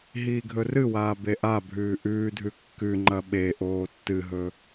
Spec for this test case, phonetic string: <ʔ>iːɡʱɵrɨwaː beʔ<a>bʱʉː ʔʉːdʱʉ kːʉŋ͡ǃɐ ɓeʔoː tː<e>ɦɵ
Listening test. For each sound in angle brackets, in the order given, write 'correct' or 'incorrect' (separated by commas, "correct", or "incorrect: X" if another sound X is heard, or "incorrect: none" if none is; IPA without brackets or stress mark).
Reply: incorrect: ɦ, correct, incorrect: ɨ